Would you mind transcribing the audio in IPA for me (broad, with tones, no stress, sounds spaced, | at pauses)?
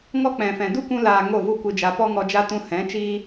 ŋ ɔ˦ k͡p ɛ̃˨ f ɛ̃˨ d u˦ kʷ ũ˧ l aː˨ ŋ o˦˨ v u˦ kʷ ɨ˧ d͡ʒ a˧ p ɔ˦ ŋ ɔ˧ d͡ʒ a˦ t ũ˧ h ɛ̃˨˦ t͡ʃ iː˦